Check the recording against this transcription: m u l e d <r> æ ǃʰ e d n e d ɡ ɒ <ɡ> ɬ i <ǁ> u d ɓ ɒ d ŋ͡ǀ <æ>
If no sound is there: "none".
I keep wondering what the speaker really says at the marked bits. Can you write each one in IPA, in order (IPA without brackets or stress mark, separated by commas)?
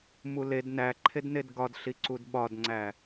n, d, ǀ, æ